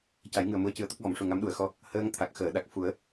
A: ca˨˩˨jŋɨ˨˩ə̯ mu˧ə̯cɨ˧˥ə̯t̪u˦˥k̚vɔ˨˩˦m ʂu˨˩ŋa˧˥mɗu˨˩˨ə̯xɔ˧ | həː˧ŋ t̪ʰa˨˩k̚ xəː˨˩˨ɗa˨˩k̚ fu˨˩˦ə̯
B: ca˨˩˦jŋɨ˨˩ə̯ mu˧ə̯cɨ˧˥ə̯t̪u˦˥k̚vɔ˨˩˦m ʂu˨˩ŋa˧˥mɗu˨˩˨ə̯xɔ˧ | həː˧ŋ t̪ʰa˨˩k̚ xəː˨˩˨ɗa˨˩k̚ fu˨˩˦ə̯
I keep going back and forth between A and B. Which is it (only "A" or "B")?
B